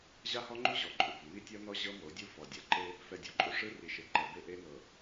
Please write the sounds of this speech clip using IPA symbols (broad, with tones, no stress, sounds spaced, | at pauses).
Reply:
ʑ a˦ h ɔ˦ ŋ͡ǃ u˦ ʑ ɔ˨ ǃʼ u˨ b o˨ m i˦ tʲ ɔ˦ n ɔ˦ ʑ ɤ˦ m o˨˦ dʲ u˦ f ɔ˨ dʲ a˨ ǃ e˦ | f ɛ˨ dʲ ɔ˨ ǃʼ u˨ ʂ ɯ˦ r i˨ ʃ e˨ ǃ ɛ˨ b e˦ ʔ e˦ n ɤ˨